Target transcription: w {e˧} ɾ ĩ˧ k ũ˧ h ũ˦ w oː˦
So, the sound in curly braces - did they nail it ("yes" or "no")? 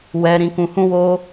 no